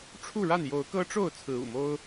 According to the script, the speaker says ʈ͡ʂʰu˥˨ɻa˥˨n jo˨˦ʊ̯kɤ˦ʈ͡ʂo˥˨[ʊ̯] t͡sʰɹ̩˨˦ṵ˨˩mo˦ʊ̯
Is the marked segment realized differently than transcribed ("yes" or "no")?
no